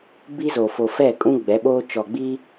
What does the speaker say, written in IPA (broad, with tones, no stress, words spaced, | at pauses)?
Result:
bi˦zo˨ fo˨fɛ˦˨kʼũ˦ ɡ͡bɛ˨˦ɓoː˦ t͡ʃɔ˨ɡ͡bi˦